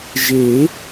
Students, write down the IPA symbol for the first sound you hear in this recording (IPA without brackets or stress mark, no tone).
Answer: ʒ